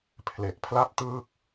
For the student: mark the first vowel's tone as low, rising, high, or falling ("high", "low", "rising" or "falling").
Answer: low